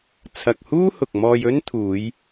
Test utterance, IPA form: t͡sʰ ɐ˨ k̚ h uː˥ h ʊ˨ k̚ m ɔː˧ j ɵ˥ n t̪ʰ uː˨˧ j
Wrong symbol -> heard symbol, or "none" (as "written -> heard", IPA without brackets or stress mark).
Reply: none